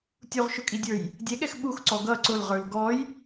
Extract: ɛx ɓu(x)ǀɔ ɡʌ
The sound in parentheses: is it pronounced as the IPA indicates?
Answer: yes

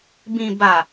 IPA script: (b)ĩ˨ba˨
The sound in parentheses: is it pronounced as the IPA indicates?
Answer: yes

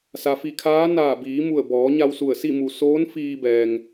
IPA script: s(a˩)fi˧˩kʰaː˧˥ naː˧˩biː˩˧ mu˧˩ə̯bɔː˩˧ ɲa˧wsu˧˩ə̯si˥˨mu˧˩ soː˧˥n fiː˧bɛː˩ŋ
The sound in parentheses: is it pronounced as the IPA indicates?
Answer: yes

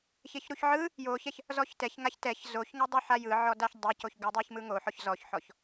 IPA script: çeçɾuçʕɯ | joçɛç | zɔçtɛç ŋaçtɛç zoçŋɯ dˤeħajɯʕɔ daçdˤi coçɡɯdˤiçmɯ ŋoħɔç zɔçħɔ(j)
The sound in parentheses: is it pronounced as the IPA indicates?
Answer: no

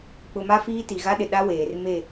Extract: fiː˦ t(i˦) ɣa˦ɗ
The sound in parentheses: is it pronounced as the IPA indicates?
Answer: no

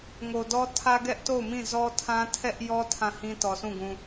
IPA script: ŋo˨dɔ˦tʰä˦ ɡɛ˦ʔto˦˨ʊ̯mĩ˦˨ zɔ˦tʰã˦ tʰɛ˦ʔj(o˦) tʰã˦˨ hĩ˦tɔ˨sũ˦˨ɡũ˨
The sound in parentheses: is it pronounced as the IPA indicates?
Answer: no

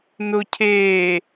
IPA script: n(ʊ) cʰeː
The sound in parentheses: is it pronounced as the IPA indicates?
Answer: yes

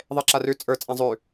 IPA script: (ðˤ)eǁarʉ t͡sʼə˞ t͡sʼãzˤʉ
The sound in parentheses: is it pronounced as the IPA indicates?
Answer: yes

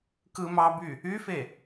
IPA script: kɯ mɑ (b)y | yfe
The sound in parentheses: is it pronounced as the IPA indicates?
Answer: yes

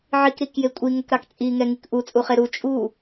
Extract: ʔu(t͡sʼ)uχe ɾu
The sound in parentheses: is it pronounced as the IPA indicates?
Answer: yes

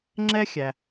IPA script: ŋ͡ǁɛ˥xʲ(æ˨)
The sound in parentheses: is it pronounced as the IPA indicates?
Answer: yes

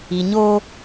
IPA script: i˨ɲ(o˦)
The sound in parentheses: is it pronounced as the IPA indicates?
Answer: yes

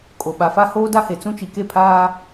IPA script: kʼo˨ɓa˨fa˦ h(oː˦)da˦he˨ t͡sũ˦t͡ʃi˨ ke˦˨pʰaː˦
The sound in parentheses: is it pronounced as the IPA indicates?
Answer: yes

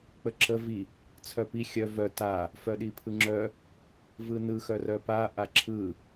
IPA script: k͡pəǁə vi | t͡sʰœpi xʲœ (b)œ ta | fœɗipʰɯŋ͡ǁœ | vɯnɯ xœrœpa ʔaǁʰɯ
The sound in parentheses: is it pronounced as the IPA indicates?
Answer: no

